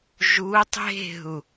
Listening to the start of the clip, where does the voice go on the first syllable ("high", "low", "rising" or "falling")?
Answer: rising